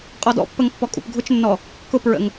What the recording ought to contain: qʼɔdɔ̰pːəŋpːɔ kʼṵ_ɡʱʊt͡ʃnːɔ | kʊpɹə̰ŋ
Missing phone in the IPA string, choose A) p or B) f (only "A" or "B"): A